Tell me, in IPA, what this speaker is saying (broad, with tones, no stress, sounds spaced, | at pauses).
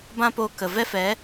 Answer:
b ã˦ p oː˧ k ə˨ v ɛ˦ f ɛ˨˦